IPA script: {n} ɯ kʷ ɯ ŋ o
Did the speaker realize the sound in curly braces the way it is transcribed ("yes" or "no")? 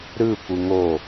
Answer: no